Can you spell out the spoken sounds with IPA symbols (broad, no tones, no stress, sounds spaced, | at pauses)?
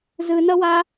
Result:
z ɯ n ʌ w a